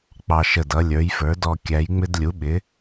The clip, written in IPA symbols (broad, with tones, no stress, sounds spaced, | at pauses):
k͡p ɑ˨˩ ʃ ə˨˩ d ʌ˩˧ lʲ ə˞˩˧ j f ə˞˩˧ d ɔ˨˩ kʲ æ˩˧ j ŋ͡m ɪ˧ d lʲ u˩˧ ɓ ɪ˩˧